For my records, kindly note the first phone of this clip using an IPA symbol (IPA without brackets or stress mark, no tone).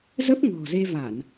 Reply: z